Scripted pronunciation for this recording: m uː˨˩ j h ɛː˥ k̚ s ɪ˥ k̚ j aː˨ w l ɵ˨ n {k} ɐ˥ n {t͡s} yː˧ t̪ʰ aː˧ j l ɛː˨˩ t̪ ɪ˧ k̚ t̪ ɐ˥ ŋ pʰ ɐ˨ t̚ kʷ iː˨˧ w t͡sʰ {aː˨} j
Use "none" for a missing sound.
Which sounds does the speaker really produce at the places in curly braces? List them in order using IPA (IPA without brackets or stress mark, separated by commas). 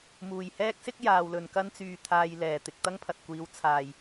k, t͡s, aː˨